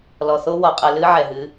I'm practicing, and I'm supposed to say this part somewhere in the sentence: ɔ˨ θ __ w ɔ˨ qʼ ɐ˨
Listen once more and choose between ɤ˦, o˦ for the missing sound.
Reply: o˦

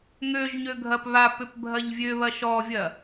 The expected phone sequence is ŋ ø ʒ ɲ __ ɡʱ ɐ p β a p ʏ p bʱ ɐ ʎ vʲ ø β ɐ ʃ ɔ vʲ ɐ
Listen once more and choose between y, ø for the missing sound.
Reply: ø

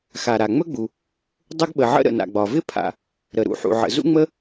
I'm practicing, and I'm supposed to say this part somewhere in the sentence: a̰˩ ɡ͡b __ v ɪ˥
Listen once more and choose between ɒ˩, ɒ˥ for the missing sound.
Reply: ɒ˩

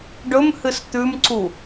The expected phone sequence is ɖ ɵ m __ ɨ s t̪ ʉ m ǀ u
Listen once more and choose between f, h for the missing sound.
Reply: h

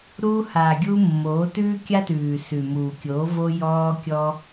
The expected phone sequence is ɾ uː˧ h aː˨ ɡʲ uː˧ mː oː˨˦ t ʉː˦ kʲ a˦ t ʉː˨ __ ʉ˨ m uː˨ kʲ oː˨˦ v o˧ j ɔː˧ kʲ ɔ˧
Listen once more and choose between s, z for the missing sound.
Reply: s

